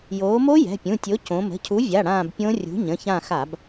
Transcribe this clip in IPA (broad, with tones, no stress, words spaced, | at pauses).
joː˩˧mo˦˥ jɛ̤˩˧˩pʲũ˩˧˩tʲo˨˥ cõ˩˧mə̤˩˧˩cʰu˨˥vʲa˩˧˩ ɽãː˦˨bpʲõ˦˥ rʲṳ˨˥ɲə̃˩˧˩çã˦˨ xa˧˩˧b